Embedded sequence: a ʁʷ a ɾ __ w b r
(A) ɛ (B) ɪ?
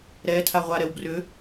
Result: A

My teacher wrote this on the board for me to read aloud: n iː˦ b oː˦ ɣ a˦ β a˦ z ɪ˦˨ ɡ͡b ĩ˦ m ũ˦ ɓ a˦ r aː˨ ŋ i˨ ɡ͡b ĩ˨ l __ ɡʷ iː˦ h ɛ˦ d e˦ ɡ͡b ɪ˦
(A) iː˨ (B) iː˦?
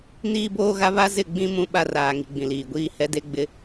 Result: A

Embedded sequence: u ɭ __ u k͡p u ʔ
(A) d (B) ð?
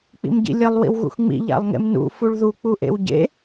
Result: B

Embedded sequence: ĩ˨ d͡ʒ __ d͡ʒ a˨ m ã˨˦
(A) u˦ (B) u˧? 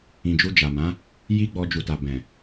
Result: B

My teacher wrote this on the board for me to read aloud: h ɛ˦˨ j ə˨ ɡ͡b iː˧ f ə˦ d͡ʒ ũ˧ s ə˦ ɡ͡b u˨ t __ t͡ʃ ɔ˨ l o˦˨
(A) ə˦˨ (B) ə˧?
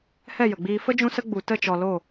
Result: A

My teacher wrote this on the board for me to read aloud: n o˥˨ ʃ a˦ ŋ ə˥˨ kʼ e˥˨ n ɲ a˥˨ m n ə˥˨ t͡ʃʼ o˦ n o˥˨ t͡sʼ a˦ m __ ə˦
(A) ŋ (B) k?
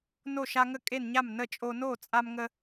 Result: A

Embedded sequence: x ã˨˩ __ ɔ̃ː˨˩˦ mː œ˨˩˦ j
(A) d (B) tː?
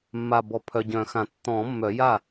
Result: B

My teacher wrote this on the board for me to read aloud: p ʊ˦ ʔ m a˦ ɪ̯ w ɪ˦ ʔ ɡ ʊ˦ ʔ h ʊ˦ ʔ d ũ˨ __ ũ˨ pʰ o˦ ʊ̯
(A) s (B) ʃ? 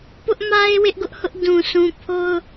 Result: A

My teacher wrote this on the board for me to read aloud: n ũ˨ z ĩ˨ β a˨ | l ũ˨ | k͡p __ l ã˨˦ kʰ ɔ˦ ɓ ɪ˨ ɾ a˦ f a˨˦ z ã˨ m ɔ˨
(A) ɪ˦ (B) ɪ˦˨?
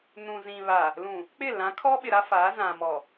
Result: B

